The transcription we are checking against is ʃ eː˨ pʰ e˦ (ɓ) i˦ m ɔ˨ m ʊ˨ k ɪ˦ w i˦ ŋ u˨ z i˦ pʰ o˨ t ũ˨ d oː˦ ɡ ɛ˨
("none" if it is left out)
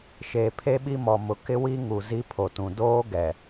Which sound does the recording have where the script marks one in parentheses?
ɓ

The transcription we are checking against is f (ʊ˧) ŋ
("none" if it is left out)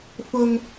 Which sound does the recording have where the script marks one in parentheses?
ʊ˧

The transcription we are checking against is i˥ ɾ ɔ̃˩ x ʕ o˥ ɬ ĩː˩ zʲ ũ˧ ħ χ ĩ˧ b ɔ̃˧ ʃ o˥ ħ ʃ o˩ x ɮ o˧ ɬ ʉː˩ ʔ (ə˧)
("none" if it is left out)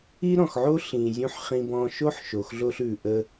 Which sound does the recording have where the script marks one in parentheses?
ə˧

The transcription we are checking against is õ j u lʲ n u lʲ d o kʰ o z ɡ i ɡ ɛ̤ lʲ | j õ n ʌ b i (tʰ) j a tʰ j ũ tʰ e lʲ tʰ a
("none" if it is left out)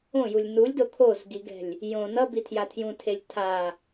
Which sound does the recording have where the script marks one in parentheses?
tʰ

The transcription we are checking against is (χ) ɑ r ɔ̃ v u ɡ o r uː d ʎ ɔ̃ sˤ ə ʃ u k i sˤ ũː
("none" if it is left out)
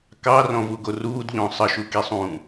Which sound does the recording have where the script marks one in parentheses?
k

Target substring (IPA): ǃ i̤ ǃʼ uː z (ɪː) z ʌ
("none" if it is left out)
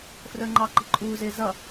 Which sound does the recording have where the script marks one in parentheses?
ɪː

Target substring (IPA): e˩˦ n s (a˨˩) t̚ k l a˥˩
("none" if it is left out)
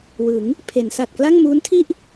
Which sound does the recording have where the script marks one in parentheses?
a˨˩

